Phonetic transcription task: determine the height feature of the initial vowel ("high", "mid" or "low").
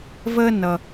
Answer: mid